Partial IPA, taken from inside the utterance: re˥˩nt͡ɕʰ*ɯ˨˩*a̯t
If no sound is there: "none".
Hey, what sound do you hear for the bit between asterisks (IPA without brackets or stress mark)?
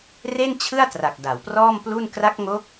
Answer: ɯ˥˩